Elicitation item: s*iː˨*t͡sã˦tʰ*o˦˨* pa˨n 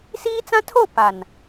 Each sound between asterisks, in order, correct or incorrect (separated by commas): incorrect, correct